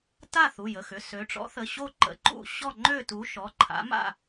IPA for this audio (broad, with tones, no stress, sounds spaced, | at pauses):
t a˥˨ θ u˩˧˩ j ə˩˧˩ x ʏ˩˧˩ s ø˩˧ ʈ͡ʂ ɔ̰˨˥ θ ə˩˧˩ ɕ o˥˨ ǃ ə̰˨˥ ǃ ṵ˥˨ ɕ ɔ˥˨ ŋ͡ǃ ø˥˨ t u˨˥ ʃ ɔ˩˧˩ ǃʰ a̰˨˥ m a̰˥˨